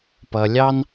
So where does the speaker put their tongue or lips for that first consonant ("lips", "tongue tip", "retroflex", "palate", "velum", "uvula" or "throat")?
lips